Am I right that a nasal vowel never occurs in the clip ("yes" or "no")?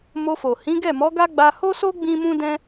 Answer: no